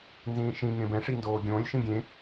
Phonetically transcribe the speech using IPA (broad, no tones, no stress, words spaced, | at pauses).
nzĩːʃĩŋẽ bɛ̃ ʂindoːɡʲõːlʲʃĩ ɡʲẽ